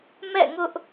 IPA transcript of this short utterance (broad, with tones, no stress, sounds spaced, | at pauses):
m ɛ̰˦˨ ŋ ʊ˦ ʔ